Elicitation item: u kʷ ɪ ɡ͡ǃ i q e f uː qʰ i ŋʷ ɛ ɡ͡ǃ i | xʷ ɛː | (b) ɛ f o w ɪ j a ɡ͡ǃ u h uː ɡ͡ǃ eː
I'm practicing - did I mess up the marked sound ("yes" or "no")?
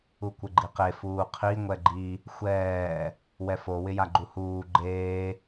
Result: yes